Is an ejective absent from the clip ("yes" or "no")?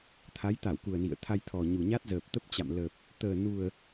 yes